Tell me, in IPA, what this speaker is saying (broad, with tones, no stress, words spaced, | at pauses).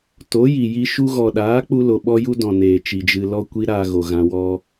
to˨˦ji˨ji˧ ʃu˧ɣɔ˨ɗaː˨˦ k͡pu˧lo˨ ɓɔ˦ju˦dɔ̃˨ neː˨t͡ʃi˨d͡ʒɨ˧ lɔ˧kʷi˧ ɾaː˧ɣo˨ɣã˧wɔ˦